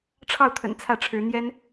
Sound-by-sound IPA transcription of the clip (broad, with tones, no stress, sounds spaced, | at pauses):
ʈ͡ʂʰ ɑ˥˩ ʊ̯ t̪ʰ ə̰˨˩ n t͡sʰ ä˥˩ ʈ͡ʂʰ ɻ̩˧˥ n̪ j ɛ˥ n